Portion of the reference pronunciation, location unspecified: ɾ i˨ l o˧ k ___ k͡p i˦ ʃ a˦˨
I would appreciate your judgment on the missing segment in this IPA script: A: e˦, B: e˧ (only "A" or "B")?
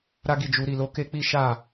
A